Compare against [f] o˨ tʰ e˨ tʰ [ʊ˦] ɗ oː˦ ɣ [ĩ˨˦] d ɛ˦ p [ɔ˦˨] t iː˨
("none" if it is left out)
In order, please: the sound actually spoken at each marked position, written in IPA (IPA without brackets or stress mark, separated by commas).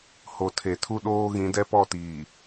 h, u˦, ĩ˨˦, ɔ˦˨